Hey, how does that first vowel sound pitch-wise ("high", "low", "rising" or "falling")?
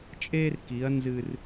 high